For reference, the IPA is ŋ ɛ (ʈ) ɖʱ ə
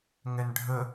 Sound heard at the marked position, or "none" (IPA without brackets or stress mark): n